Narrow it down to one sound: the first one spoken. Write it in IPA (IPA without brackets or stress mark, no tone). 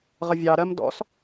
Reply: ʁ